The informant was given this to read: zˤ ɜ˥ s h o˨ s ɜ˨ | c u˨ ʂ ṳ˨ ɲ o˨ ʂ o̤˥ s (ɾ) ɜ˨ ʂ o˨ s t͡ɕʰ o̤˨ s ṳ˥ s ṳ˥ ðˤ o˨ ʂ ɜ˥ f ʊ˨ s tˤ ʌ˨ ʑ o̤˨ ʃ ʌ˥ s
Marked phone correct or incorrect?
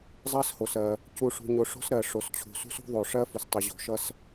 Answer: correct